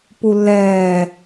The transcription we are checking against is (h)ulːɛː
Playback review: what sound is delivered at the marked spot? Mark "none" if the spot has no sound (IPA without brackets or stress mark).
p